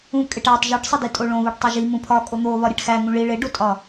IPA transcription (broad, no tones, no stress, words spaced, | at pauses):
ũ kʼeʈætˤ ʒuʈsˤidi tʼoɭõβoʈ tˤoʒi mũpʰɒ kʼon̪o βɒɾʲeʈxæ ŋũɭi ɭeɖotʼɒ